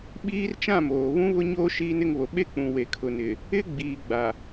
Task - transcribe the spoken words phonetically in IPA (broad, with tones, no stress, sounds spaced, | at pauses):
ɓ iː˦ r t͡ʃ ã˦˨ m oː˨ β ũ˦ β ʊ˦ ɲ oː˦ ʃ iː˦ n ɪ˦ ŋ β o˨ ɓ e˦ k͡p ũ˨ w e˨ kʰ ʊ˨ n ɪ˨ | ɪ˦ ɡ͡b iː˨ ɡ͡b a˨